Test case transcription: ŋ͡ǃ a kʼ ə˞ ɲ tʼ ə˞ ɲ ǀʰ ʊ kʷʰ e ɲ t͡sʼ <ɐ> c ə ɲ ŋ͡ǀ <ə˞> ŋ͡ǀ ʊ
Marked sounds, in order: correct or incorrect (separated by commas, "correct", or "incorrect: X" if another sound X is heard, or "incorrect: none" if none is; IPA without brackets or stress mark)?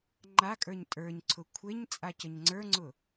incorrect: a, correct